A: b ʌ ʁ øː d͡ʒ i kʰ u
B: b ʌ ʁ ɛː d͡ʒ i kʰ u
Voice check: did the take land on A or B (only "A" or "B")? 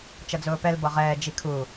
B